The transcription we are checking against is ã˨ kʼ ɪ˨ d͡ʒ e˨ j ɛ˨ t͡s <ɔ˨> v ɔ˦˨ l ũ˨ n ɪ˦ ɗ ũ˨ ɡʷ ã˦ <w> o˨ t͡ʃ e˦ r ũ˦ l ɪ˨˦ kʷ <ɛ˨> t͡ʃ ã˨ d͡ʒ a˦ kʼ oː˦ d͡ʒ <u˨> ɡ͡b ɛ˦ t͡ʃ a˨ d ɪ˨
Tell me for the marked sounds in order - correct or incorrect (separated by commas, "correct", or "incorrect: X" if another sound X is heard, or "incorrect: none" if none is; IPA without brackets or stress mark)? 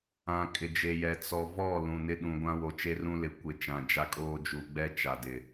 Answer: correct, correct, incorrect: ɪ˨, correct